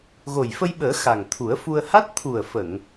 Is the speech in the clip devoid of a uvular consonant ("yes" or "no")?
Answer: yes